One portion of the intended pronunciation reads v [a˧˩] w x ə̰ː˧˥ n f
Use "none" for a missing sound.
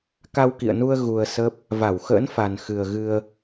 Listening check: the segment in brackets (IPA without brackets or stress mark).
a˧˩